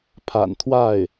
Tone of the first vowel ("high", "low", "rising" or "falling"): low